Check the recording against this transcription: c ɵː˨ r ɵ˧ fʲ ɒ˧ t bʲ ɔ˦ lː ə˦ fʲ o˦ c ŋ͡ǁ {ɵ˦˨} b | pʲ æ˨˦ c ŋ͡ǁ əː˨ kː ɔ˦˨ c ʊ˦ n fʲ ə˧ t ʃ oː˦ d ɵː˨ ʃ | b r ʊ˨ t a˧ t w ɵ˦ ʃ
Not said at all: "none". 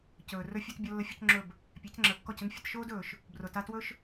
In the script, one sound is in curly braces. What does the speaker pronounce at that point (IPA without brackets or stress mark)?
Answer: ɵ˦˨